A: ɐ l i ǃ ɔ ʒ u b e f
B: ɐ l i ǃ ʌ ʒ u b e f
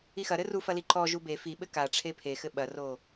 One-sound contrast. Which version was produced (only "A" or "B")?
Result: A